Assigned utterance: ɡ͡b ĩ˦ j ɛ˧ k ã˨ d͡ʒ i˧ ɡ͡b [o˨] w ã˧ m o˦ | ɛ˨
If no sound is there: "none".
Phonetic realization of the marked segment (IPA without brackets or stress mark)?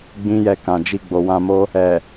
o˨